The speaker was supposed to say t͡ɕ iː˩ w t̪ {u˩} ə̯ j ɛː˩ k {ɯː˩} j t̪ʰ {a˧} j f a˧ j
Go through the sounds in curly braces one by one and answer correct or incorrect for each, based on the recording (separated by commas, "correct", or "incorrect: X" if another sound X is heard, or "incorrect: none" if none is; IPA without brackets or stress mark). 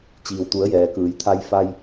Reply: incorrect: u˩˧, incorrect: ɯː˩˧, correct